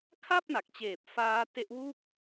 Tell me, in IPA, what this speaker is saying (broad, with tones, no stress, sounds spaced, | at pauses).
kʰ a˥˩ p̚ n a˨˩ k̚ t͡ɕ eː˨˩ p̚ f aː˦˥ t e˦˥ ʔ w u˥˩ k̚